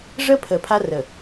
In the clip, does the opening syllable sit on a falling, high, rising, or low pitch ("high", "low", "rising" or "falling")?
high